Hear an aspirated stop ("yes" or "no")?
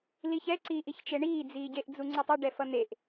no